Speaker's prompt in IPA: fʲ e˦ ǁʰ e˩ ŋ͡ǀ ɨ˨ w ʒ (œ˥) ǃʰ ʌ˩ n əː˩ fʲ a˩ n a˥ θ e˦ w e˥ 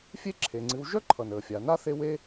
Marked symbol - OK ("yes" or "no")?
yes